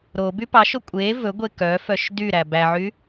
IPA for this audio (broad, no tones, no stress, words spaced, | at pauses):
ɾo bypɑʃo kʷʼe vɵɡʷe kœfœʃ dyɾæ bæʕy